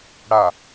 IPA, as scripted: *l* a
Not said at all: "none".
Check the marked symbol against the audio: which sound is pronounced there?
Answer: ɽ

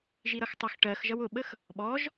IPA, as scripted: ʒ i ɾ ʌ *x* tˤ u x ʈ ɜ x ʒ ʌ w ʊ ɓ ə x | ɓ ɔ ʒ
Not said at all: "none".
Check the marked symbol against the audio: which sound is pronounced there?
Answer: x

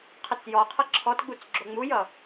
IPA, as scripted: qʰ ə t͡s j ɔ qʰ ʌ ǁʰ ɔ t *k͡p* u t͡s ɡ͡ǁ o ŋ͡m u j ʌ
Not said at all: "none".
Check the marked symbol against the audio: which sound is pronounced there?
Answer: ɡ͡b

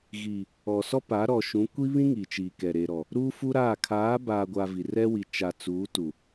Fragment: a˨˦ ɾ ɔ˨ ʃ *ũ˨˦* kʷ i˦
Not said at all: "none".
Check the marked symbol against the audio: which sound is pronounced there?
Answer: ũ˨˦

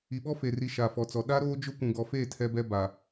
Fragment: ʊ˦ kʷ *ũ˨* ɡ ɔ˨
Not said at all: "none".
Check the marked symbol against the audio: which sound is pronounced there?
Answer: ũ˨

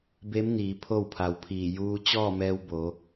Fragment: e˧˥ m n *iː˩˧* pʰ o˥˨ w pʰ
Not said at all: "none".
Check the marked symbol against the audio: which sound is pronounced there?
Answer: iː˩˧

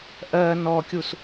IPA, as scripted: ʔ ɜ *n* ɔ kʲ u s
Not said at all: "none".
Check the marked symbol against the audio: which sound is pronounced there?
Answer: n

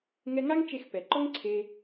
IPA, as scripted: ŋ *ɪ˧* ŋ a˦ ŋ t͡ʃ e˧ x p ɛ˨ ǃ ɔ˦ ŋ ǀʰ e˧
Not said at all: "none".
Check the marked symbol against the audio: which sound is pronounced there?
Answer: ɛ˧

